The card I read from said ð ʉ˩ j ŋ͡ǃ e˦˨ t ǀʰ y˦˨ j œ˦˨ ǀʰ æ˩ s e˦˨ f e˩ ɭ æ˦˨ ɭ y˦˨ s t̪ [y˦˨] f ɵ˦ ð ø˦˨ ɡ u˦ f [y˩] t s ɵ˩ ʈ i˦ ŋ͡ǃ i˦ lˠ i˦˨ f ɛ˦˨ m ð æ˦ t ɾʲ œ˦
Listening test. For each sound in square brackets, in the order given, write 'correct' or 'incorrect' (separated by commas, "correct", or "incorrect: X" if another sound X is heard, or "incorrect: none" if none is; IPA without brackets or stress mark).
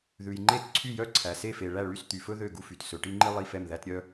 incorrect: y˩, correct